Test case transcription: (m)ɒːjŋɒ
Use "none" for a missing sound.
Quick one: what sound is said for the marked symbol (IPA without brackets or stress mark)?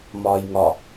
m